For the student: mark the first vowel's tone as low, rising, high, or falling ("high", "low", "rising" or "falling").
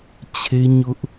high